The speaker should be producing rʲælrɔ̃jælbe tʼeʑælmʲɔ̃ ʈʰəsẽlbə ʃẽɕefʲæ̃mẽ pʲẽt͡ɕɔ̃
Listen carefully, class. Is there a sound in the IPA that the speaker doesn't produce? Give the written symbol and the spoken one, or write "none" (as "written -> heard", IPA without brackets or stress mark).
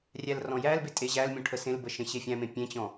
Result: none